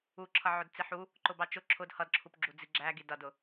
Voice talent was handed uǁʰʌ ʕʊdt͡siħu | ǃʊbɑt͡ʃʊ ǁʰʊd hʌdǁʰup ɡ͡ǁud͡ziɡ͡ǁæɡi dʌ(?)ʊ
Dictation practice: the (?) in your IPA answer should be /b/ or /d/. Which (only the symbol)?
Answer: d